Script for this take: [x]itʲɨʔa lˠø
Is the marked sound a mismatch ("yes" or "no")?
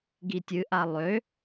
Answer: yes